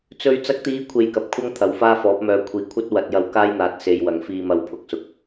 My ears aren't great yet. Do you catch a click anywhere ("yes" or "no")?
no